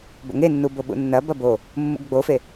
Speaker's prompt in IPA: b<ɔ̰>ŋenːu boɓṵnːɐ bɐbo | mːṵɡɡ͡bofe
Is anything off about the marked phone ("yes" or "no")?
yes